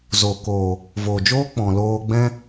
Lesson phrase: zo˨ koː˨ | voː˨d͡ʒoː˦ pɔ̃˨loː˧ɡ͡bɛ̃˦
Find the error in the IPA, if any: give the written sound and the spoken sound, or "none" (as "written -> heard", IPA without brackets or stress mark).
p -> k͡p